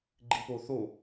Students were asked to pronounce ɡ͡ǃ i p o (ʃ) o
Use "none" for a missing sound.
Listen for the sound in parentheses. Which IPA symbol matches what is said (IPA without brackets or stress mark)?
θ